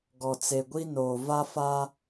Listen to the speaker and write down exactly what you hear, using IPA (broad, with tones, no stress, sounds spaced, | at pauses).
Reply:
ɡ ɔ˨ t͡s e˨ ɡʷ i˦ n oː˨ v a˦ f a˦